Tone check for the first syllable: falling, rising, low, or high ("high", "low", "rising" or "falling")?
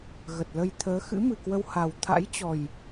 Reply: low